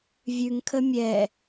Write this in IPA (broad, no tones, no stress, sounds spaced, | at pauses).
vʲ ʉ ŋ kʰ ə mʲ ɛ